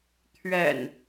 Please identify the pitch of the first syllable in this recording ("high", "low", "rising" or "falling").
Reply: low